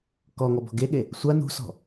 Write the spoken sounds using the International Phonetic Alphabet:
kɔŋɔ bɔ̤ɡeɠe | sʷa nṳsɔ̤

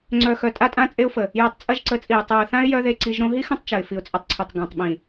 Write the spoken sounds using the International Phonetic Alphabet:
ŋ͡ǀœ˨xœ˨ tʼa˦tʼã˦t͡sʼe˦ʊ̯fə˨ | ja˧tˤt͡sʼɐ˦ʒǀə˨˦t͡sʼi˨ə̯ tˤɤ˨ə̯θã˦ɪ̯ jœ˦ðe˧ǀi˧ʒɾõ˦ ɦi˦xɐ̃˦tˤ t͡ʃɐ˨ɪ̯fi˨ʊ̯t͡sʼə˧tˤǀʰœ˨tˤ ɡã˨tˤɓĩ˨

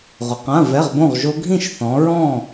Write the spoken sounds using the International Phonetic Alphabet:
ʁʊ˨qã˧˥˧ vɛ˧˥˧ʁbõ˥˨ʁʒo˦˥ ɡʱĩ˥˨ʃθɔ̃˨˦ ɹɔ̃˥˨

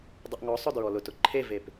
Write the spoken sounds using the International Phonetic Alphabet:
dˤəʔŋɔsˤʊ dɹɔlʊtʊ ǃʰevep

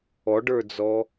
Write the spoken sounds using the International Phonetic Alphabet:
ɔɖə˞d͡zɔ

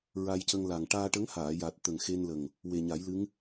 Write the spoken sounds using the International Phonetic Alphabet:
ɹa˧jcə˧ŋ la˨˩ŋ ʈaː˧ʈə˧˥ŋhaː˨˩˨ja˨˩t̚ t̪ə˨˩ŋxe˧nlə˨˩ŋ | we˨˩ɲa˨˩˦jlɨ˧˥ŋ

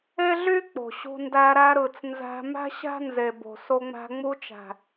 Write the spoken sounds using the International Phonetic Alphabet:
e˦ɮy˦ k͡po̤˨ɕṳ˧ndæ˧ ɾæ˧ɾɯ˨t͡s nzæ̤˧ mæ̤˦ɕæ̤˦nze˨bo̤˨ so˧ŋ͡mæ̤˧ ŋ͡mu˧t͡ʃæ̤˨

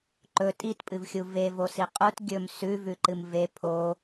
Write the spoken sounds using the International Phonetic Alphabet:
ǃɵ tʼitpʼɨvxʲu vevosi qʼut ɡʲɵm sʉvʉǃɨm ve pʰo

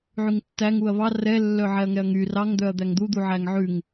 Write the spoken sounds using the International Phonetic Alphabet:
ʕyŋtːæŋ uɐ̯βɑ rɛlːœ ʕɛɐ̯ŋɛɐ̯ŋy rɑŋd̪œɐ̯ d̪æŋd̪ud̪u ʕæŋʕʉŋ

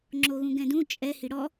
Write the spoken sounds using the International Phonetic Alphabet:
ŋ͡ǁoɣũɡɛ̃dũ t͡ʃʼɛ hiɽɔ

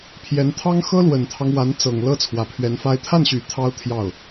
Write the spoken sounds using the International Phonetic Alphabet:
pʰjɛ˧˥n t̪ʰɑ˥ŋ xɤ˥lwə˨˩nt̪ʰɑ˦ŋ wa˧˥nt͡sɤ˨˩ŋ lɤ˥t͡sʰwä˨˩pʰɥɛ˧˥nfa˥ɪ̯ t̪ʰa˥˩nɕy˨˩ t̪ʰɑ˥ʊ̯t̪ʰjɑ˥˩ʊ̯

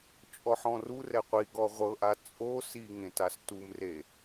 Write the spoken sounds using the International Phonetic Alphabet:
t͡ʃʼɔħɔ̃ru rɛqʷiɡɔ ʁʷɤʔa t͡sʼo siŋẽt astumre

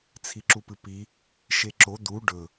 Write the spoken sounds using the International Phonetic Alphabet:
t͡sʰiǁupɨpi | ʃeǁo d̪u ɖɵ

